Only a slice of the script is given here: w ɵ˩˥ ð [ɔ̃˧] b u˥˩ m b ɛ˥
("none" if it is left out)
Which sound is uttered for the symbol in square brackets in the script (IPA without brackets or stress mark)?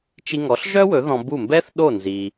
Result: ɔ̃˧